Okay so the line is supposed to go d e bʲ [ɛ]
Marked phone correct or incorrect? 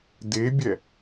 correct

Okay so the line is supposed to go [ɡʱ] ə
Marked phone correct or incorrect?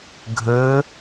correct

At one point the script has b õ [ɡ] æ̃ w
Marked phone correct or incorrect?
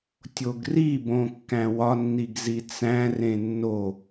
incorrect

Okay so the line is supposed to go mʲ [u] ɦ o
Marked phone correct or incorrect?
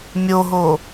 incorrect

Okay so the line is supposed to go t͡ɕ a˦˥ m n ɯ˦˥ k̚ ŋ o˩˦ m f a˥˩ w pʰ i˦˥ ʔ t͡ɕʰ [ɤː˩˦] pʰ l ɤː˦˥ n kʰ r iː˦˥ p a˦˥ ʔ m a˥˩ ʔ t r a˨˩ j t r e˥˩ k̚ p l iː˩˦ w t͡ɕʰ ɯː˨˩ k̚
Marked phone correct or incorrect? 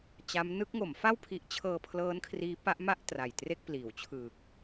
incorrect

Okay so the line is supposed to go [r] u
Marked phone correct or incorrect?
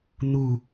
incorrect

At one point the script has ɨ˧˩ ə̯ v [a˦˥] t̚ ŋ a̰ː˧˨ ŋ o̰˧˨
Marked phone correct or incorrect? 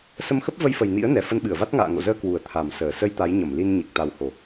correct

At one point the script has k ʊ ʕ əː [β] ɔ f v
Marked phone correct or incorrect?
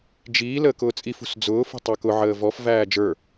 incorrect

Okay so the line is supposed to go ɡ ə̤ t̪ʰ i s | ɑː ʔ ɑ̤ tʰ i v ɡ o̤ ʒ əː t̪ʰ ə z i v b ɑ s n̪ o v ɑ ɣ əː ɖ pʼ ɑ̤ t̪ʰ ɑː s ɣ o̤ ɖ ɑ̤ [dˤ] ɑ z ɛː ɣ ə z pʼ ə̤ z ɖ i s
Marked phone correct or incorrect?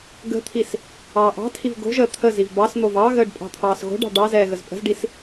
incorrect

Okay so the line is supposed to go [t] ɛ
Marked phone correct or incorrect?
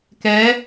incorrect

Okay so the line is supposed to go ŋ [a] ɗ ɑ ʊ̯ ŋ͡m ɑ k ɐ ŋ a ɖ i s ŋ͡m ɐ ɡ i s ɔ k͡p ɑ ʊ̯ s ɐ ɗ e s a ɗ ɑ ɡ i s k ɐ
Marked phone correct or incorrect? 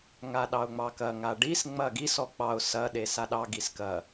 correct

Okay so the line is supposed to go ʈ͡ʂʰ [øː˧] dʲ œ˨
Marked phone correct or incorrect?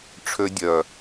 incorrect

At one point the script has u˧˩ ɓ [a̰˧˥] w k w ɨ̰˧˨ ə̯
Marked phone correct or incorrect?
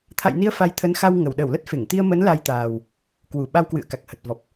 incorrect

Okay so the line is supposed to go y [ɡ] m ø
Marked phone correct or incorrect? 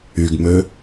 correct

